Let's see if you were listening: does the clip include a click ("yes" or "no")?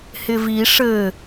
no